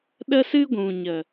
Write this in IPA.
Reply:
ɗə˦sɨ˦ɡʷũ˨ ɲə˨

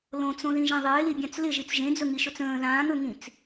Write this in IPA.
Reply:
lõt͡sõðĩʒẽ ðˤɪːlibʲãt͡s lɪʒit͡s ʒẽd͡zɵŋiʃɵt͡s ə̃ː ðãːŋɵŋĩt͡s

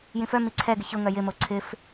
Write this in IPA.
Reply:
jĩfœ miǀʰɛɡɪ çʊ ŋœjɪmo ǀʰɪf

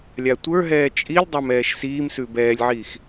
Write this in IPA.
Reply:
lʲatʷə˞ɦɛː t͡ʃʼilʲdˤam ɛːʃsiːmsʉ bɛːlʲʕiːx

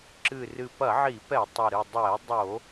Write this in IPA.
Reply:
ǁɨ˨˩rɨ˨˩ pɐ˧˩˧ʕi˧˩˧pɛ˧˩˧ tˤe˨˩ɾɨ˨˩ dˤɛ˧˩˧dˤo˧˩˧

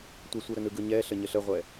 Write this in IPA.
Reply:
tʷɛsʷɯɾənɯ ɡɯɲɛɬə ɲəɬəʁʷɛ

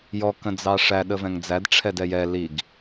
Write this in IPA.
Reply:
jɔ kə̃d͡zɑʂæ ɗəvɛ̃ŋd͡zæd ʈ͡ʂʰɛdɛjɛ liɡ

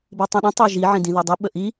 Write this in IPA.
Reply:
bitˤĩɗĩ tˤeʒi ʕĩdĩðodˤi ɓəʔi

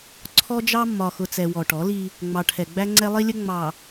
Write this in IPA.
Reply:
ǀʰɔ˦d͡ʒɑ˦ mːɒ˨ xʊ˨t͡sɛ˨ wɔ˨ʈɔ˨˦li˦ | ŋ͡mɑ˨ʈʰɛ˨ɡ͡bæ˦ ŋ͡ǀɛ˦lˠi˦lʲə˦ ŋ͡mɑ˨

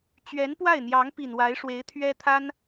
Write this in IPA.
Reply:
t͡ɕɥɛ˧˥npwa˥˩ɪ̯n̪jɑ˧˥ŋpi˨˩n wa˧˥ɪ̯ʂwe˧˥ɪ̯t̪ʰɥɛ˥t̪ʰa˥n

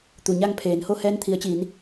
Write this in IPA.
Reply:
t̪u˩ɲa˥˨ŋpʰeː˩˧nho˥˨ hɛː˧nt̪ʰi˩˧ə̯t͡ɕiː˩˧n

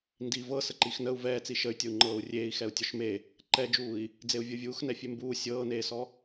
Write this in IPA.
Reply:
ndi vɤ səǃixnəu̯ vɛːt͡si ʃəy̯tʲɤu̯ ŋ͡ǃɤːu̯rʲeːi̯ xɛu̯tʲɔʃme | ǃɛd͡ʒuːi̯ | d͡zeu̯vʲɤvʲuːxnɛ fʲembuː sʲɤːneːsɔ

